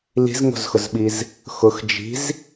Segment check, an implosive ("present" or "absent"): present